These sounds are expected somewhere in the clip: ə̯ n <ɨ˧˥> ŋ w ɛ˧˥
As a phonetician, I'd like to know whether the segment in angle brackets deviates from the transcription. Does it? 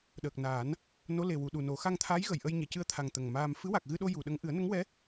yes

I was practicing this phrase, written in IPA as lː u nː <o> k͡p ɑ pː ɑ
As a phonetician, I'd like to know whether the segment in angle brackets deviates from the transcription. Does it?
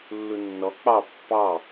yes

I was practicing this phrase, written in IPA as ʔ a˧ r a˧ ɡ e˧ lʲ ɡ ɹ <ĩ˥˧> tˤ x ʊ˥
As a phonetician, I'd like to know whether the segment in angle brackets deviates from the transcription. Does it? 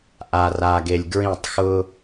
no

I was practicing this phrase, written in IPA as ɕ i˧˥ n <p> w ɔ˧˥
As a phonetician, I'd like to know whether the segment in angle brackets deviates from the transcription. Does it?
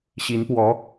no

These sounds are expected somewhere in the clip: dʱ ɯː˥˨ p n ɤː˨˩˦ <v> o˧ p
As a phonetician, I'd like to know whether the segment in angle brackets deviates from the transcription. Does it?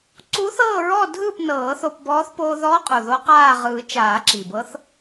yes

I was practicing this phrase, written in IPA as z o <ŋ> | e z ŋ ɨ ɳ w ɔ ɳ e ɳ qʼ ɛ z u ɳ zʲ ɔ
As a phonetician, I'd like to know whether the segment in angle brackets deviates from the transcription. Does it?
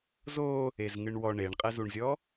yes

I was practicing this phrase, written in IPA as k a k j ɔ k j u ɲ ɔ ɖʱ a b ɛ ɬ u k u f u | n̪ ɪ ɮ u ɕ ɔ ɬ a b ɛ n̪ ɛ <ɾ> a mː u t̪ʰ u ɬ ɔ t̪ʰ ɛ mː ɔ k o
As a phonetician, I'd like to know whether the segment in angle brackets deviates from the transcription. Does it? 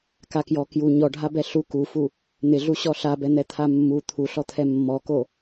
yes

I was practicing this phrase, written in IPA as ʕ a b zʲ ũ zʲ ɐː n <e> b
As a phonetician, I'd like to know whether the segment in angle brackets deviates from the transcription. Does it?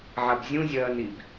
yes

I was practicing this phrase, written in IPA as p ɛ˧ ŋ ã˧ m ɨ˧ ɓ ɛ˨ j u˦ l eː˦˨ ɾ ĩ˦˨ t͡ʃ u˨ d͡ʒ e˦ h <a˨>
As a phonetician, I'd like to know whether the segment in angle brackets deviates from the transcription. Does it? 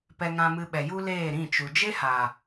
no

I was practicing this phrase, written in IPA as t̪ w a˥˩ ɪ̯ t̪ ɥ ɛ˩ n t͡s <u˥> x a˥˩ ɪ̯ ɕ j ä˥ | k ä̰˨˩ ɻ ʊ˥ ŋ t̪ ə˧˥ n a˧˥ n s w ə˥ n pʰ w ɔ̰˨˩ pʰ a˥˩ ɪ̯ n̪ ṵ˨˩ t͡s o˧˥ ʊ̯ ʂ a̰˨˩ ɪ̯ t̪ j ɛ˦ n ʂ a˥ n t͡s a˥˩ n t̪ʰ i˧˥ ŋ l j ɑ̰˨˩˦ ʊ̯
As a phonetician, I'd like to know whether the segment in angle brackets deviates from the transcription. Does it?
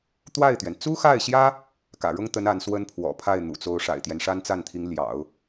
no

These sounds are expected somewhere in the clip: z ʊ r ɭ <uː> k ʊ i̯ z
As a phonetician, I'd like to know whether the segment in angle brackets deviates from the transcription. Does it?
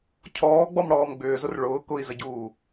yes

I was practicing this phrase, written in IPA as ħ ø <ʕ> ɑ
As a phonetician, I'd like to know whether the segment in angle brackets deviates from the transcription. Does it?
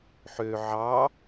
no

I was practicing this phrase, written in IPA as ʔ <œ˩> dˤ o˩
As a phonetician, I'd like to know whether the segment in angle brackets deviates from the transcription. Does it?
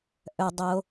no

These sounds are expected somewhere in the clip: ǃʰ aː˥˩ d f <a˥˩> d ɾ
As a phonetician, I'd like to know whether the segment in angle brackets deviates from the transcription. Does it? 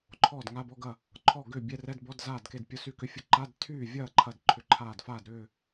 yes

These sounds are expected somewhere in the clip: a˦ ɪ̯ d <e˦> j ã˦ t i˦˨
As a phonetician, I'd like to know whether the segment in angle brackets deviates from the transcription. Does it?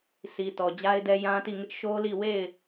yes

